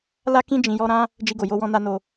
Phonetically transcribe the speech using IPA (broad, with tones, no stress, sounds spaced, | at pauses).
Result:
l a˦ k ĩ˦ d͡ʒ ĩ˧ j ɔ˦ ɾ ã˦ | d͡ʒ i˧ ɡ o˨ j o˧ w ɔ̃˧ n a˦ n o˧